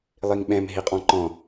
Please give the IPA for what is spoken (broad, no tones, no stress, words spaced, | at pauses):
lˠiŋɓɛ̃m ɦiqʼɔ̃ǃɔ̃